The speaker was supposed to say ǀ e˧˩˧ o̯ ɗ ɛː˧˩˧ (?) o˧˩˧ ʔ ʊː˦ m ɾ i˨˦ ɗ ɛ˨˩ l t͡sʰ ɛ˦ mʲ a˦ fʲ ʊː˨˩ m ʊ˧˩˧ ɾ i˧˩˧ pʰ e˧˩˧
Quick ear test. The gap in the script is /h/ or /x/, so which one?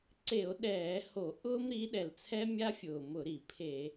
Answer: h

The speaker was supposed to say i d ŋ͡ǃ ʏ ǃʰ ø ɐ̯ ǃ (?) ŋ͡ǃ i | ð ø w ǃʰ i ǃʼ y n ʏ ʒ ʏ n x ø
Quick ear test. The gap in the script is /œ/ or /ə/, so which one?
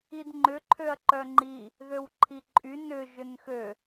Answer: œ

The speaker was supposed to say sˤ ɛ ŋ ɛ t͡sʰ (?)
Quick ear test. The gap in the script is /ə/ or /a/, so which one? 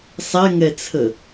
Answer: ə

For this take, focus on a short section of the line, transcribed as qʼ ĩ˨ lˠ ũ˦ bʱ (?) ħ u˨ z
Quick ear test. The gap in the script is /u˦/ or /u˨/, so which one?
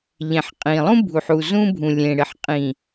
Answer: u˨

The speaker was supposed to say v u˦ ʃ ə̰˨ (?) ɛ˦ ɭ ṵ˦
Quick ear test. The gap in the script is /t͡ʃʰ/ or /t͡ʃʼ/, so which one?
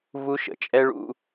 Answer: t͡ʃʼ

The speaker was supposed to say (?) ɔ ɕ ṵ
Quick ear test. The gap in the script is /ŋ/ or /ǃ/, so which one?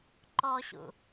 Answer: ǃ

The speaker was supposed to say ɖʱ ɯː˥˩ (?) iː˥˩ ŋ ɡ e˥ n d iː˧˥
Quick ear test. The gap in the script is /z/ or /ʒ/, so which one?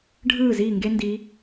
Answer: z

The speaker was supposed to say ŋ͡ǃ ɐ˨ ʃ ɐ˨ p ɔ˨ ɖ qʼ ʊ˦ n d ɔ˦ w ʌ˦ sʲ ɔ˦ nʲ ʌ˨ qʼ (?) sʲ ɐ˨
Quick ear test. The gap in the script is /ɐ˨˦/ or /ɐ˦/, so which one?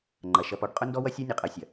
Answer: ɐ˨˦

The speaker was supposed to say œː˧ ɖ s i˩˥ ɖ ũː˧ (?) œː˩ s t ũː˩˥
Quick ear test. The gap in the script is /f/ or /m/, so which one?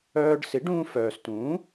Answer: f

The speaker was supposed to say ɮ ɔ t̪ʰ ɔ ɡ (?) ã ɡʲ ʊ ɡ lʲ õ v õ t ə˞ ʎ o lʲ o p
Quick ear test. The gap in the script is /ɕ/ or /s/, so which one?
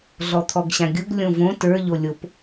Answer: ɕ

